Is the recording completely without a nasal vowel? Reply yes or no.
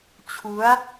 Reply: yes